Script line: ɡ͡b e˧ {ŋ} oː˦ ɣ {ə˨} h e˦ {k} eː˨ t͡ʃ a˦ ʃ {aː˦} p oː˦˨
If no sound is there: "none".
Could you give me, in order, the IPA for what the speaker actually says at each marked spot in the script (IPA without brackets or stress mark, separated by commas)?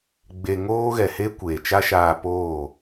ŋ, ɛ˨, kʷ, aː˧